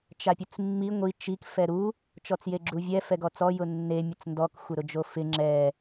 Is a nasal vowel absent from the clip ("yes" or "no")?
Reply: yes